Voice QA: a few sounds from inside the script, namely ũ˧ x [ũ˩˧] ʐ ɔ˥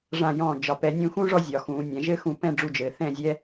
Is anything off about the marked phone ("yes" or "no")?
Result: yes